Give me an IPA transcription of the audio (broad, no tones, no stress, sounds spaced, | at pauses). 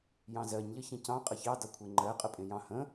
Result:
j ɑ̃ z ɜ ɲ ʎ ə ç ẽ c ɑ̃ qʼ ə ç ɑ d ʌ kʷʰ e ŋ͡ǃ ɜ qʼ ə pʼ ẽ j ɑ̃ h ə̃